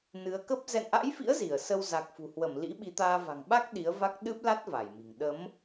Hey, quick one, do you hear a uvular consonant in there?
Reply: no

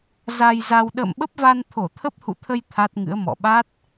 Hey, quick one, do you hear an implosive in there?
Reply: yes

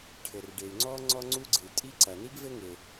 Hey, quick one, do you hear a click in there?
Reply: yes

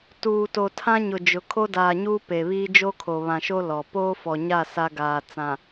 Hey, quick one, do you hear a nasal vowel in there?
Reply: yes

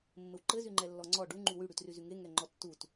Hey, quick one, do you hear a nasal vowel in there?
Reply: no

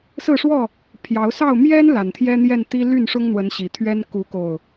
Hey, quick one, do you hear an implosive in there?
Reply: no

